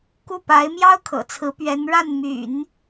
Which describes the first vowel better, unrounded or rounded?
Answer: rounded